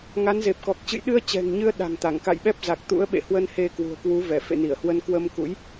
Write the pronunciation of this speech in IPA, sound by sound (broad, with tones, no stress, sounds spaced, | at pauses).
ŋ a˨˦ n z e˨˩ p̚ k ɔ˨˩ k̚ t͡ɕ ɨ̰˧˨ j ɗ ɨ˧ ə̯ t͡ɕ ɛ̤˨˩ ŋ ɲ ɨ˧ ə̯ ɗ a̤˨˩ ŋ t̪ a˧˩ ŋ k a̰˧˨ j ɓ ɛ˦˥ p̚ z a˨˩ k̚ t̪ ṵ˧˥ ə̯ ɓ ḛ˧˨ h w ə˧ n h e˧ k w ṳ˨˩ ə̯ k w u˨˦ v ɛ˧˩ f ḛ˧˨ n i˧˩ ə̯ h w ə˧ n k w ə˧ m k ṵ˧˥ j